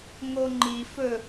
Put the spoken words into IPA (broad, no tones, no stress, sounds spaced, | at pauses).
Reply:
ŋ o ŋ͡ǃ i f ɵ